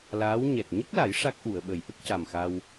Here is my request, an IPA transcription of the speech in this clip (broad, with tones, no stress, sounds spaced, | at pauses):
l aː˧˥ w ɲ ɛ˨˩ t̚ ɲ ə˦˥ k̚ l a˨˩˦ j ʂ a˦˥ k̚ ʔ u˨˩˨ ə̯ ɓ ə˨˩˦ j ʔ ə˦˥ k̚ c a˨˩ m x a˧ w